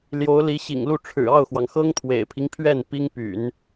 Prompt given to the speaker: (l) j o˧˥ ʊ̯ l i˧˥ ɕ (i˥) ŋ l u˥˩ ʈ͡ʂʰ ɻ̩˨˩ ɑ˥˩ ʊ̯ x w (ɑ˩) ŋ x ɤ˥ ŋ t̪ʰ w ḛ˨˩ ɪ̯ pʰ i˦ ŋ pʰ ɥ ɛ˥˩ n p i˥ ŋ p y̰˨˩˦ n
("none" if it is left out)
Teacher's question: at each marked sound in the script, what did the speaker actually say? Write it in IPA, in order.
l, ḭ˨˩, ɑ˩

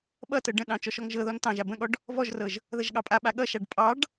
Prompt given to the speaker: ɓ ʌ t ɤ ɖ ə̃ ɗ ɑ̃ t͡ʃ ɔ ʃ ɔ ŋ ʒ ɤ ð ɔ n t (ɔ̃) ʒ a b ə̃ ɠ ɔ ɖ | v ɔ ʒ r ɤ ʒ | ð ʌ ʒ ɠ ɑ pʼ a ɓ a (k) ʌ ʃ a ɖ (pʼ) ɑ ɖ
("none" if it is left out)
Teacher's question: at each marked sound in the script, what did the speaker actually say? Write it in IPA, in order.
ɑ̃, ɠ, pʼ

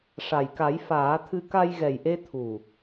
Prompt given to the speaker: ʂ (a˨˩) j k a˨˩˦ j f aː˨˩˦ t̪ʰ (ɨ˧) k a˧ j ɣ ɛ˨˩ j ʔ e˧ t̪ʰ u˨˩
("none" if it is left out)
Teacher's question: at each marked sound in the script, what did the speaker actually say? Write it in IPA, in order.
a˨˩, ɨ˧

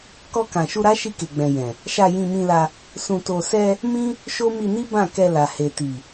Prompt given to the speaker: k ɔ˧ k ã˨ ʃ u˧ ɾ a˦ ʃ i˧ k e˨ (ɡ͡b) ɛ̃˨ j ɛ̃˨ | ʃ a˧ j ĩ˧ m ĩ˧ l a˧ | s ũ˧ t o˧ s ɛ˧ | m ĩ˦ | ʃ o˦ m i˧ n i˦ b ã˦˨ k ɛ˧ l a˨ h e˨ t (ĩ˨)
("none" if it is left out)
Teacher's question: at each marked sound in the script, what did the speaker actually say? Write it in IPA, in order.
ɡ͡b, i˨

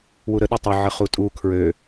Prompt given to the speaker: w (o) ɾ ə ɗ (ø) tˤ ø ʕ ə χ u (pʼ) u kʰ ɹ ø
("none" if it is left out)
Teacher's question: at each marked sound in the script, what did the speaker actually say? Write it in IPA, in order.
u, ə, tʼ

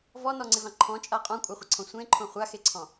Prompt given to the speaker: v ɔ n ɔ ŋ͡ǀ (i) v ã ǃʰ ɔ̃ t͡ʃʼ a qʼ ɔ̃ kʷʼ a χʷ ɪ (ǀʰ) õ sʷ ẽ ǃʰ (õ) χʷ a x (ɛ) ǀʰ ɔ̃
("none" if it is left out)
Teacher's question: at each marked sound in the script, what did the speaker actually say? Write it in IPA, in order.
ɪ, ǀʰ, õ, e

